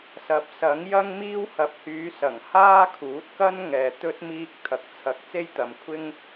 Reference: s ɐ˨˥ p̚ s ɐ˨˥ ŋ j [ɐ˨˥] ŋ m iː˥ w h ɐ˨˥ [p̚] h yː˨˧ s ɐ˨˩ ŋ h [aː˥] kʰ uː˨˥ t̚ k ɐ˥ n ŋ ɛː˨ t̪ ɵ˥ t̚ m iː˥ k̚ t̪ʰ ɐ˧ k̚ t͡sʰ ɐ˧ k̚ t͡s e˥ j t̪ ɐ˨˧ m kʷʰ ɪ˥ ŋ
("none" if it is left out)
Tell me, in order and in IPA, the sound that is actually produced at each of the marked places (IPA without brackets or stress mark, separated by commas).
ɐ˥, p̚, aː˥